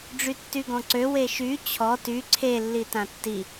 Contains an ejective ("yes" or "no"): no